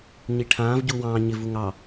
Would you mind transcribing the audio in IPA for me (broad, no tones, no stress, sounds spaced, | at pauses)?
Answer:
ɲ i ʈʰ ãː v ɟ uː w ɑ̃ː ɲ ɪ v u ŋ ɑ